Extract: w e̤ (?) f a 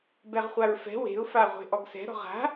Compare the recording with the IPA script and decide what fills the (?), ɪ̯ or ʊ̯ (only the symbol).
ʊ̯